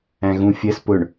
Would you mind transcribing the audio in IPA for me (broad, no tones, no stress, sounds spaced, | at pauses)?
æ̃ ɣ ũ fʲ ɜ s p ʊ ɳ